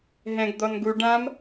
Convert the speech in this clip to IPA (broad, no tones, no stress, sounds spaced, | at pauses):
ɦ ɛ̃ ɡ d̪ ɔ n ɡ u ɖ ã m